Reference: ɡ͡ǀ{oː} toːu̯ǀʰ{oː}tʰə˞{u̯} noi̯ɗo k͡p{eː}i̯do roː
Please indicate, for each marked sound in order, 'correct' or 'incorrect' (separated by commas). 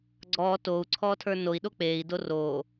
incorrect, incorrect, incorrect, correct